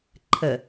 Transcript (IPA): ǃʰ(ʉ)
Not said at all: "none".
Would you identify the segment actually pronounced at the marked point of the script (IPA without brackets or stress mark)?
ə